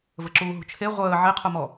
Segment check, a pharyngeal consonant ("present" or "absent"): present